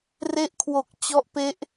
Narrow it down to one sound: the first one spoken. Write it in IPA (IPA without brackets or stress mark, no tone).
r